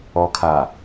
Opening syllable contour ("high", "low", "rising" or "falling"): low